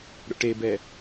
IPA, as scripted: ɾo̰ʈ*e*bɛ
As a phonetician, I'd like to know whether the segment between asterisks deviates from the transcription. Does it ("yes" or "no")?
no